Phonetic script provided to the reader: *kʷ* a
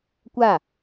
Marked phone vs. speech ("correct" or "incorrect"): correct